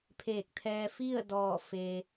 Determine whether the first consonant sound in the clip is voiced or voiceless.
voiceless